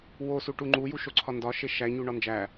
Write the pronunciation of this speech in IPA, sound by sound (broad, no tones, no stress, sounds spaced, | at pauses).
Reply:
w o s u ʈ u ŋ͡ǃ u j u ʃ o ǀʰ ɒ n d ɒ ʃ e ʃ æ ɲ u ɳ ɒ n d͡ʒ æ